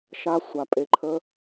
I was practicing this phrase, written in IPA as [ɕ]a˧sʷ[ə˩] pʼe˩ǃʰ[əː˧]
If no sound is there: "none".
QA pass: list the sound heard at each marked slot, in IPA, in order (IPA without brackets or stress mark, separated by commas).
ʃ, a˩, ə˧